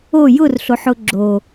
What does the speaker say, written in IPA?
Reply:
o j ʊ r ɬ o ħ ʊ ɡ͡ǁ o

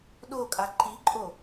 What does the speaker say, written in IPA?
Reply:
ɗ o kʼ a ǃ i ǃʼ o

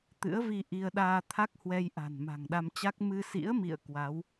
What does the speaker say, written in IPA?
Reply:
t̪ ɨ̰˧˥ ə̯ v i˧ ʔ i˧ ə̯ ɗ aː˧ t̪ʰ a˦˥ k̚ h w ɛ˧ j ʔ a̤˨˩ n m a̤˨˩ ŋ ɗ a˧ m t͡ɕ a˦˥ k̚ m ɨ˧ s ḭ˧˥ ə̯ m ḭ˧˨ ə̯ k w a˨˦ w

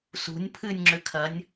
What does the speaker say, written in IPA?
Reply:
s ṳ nʲ pʰ ɨ nʲ ŋ͡ǁ ʏ kʰ ɐ nʲ

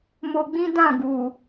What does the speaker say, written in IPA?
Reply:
m o˧ ɡ͡b ĩ˦ d ã˦˨ ɡ u˨

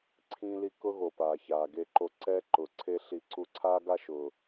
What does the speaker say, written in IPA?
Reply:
ǀʰ ĩ˧ l i˧ k ʊ˥ ɣ o˩ p aː˩ ç aː˩ ɡ e˧ ǃ o˧ ǀ ɛ˧ ǃ ʊ˩ ǀʰ e˥ ɬ i˧ ǀ u˧ ǀʰ aː˥ ɡ a˥ ʃ ʊː˩

